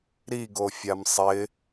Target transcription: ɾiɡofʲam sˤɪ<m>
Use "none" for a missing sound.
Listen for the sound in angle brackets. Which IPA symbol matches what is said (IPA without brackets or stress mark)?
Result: none